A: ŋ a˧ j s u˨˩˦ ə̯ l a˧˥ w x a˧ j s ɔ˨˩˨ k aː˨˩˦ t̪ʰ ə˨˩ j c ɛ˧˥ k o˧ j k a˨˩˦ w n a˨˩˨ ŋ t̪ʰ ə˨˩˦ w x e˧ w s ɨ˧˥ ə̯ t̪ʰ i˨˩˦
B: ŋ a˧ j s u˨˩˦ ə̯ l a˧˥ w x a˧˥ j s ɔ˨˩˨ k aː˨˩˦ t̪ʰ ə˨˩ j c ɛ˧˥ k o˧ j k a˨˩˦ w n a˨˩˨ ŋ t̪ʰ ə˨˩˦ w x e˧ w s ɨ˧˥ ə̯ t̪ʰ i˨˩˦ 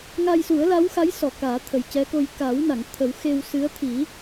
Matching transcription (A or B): B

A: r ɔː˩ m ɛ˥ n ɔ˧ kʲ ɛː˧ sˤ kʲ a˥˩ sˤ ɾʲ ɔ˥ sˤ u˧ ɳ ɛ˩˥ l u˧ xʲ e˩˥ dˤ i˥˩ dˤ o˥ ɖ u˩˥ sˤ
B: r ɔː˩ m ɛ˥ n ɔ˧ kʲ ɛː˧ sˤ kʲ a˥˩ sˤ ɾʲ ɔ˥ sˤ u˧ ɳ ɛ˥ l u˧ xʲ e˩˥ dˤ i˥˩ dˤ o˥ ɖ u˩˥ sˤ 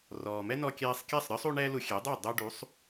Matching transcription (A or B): B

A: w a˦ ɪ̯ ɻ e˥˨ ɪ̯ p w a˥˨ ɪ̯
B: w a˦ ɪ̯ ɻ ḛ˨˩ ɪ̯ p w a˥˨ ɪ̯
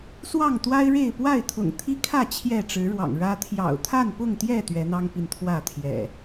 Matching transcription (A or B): A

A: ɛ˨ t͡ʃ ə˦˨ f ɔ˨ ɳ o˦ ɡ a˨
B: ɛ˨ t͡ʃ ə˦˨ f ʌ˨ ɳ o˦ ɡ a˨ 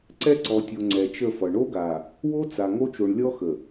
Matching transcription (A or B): B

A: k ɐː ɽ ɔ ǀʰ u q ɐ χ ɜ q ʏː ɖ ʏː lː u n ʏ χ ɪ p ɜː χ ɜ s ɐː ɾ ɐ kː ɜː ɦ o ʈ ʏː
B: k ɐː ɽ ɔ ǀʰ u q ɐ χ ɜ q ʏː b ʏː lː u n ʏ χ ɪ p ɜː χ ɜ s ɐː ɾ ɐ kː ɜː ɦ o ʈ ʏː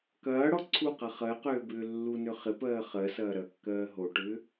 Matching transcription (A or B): B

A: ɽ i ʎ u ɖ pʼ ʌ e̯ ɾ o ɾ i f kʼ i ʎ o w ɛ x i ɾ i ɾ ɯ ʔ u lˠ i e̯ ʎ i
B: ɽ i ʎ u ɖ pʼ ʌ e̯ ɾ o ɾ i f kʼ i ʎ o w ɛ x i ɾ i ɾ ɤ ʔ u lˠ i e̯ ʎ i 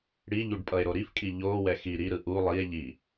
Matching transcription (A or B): A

